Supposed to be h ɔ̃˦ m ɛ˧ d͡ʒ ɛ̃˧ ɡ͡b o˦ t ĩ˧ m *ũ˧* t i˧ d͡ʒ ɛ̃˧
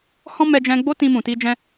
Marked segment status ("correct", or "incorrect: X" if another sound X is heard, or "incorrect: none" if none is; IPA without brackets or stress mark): incorrect: ũ˨